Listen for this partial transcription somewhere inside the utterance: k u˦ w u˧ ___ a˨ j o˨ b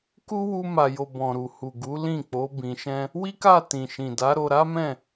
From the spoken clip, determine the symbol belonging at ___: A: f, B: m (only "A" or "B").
B